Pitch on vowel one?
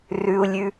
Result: low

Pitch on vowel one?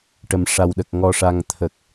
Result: low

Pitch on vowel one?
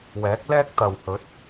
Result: rising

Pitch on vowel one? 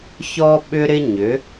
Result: high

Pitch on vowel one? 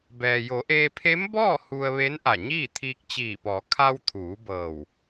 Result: low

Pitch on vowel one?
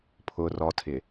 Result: low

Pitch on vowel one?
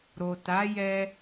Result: low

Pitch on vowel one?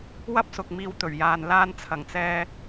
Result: high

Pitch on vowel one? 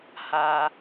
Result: low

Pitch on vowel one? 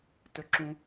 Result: high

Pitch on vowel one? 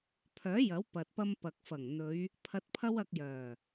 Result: rising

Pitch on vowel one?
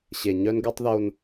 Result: low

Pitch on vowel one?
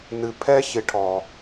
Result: low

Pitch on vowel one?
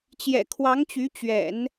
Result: low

